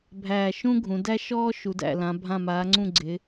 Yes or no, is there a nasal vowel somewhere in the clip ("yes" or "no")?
yes